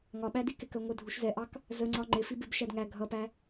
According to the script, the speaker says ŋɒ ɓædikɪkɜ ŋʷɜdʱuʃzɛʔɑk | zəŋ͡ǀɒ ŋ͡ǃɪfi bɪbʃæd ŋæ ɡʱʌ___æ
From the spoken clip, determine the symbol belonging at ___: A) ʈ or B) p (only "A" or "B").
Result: B